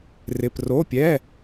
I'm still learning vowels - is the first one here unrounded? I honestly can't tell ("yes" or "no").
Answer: yes